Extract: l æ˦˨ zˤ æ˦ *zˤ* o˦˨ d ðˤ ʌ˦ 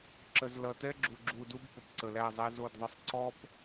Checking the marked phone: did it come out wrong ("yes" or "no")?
yes